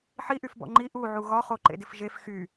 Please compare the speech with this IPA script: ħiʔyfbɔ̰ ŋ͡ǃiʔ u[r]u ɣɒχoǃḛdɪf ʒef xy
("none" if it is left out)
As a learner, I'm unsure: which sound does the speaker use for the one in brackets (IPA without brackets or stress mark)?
ʕ